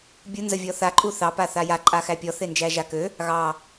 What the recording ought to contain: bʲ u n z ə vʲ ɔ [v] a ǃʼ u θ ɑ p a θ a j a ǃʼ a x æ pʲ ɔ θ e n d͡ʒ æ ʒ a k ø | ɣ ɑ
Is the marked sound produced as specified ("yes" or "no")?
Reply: no